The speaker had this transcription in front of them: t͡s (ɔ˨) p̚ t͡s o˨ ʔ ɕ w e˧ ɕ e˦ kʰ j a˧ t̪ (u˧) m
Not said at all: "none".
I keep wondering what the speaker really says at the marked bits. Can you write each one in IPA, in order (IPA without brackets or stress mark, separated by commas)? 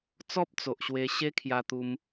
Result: ɔ˦, u˧